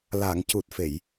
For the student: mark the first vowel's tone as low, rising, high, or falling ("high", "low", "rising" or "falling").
low